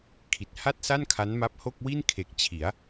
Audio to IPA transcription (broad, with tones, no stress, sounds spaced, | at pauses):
kʰ i˨˩ t̚ h a˥˩ t̚ s a˥˩ n kʰ a˦˥ n m a˦˥ p̚ h o˥˩ k̚ w i˥˩ n kʰ e˨˩ k̚ t͡ɕʰ i˩˦ a̯